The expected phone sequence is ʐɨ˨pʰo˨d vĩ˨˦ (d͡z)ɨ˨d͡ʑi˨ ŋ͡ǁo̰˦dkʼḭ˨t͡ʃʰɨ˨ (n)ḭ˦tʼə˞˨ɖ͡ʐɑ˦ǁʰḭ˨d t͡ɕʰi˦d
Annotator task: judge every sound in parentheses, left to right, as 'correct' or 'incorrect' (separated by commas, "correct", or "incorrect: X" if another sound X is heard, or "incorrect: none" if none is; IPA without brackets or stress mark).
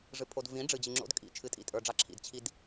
incorrect: ɖ͡ʐ, incorrect: tʼ